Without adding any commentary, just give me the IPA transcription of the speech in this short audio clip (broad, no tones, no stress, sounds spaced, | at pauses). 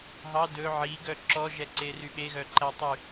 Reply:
ɦ ɑ d ɵ ʕ i ɡ œ ǁ ɔ ʒ ɛ ǀ e r y ɓ e ɣ œ ǃ æ tˤ y